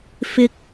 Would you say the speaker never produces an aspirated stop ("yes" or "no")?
yes